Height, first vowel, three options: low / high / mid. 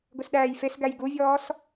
high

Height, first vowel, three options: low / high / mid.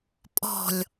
mid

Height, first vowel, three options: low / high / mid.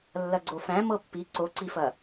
low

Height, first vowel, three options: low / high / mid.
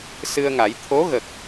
high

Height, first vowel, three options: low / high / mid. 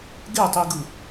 mid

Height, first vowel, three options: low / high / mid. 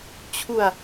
high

